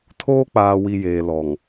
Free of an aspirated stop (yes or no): no